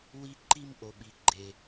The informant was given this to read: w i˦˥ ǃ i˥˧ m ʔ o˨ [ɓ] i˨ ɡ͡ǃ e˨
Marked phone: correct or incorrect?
correct